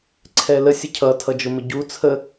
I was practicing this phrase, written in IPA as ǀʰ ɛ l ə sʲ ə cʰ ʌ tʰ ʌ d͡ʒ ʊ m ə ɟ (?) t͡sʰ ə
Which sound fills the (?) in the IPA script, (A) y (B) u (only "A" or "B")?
B